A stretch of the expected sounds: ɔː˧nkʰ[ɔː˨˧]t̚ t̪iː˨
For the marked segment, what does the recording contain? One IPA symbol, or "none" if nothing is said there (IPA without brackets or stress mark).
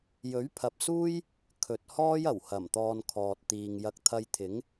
ɔː˨